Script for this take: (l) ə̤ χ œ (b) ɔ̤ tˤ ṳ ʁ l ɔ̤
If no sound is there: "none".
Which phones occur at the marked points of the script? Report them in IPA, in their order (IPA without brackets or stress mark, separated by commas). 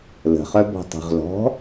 l, b